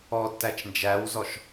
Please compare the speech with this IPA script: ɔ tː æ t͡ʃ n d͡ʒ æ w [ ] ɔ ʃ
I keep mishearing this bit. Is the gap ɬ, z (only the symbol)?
z